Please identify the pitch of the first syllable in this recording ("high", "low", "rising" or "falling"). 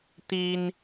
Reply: high